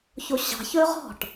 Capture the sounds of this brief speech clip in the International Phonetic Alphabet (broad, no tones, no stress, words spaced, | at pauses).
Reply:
çoɕɑ̤ çɵːʁɔ̤ʈ